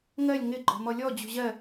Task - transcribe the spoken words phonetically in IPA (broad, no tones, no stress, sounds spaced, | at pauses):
ŋ ɜ lʲ ŋ ɪ ɡ͡ǃ ɔ̤ m ɔ lʲ ɔ d͡ʑ ṳ ʑ ɜ